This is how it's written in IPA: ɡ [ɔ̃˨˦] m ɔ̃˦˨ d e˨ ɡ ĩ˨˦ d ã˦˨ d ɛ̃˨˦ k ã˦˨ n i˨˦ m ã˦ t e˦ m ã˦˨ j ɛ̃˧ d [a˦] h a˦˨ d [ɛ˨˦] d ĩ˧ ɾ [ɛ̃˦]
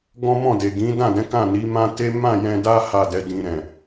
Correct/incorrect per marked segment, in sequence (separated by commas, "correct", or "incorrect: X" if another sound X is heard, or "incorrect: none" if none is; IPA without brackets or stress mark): incorrect: ɔ̃˦, correct, correct, incorrect: ɛ̃˨